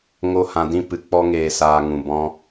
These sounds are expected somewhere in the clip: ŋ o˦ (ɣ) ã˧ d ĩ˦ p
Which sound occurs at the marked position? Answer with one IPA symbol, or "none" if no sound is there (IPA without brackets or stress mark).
h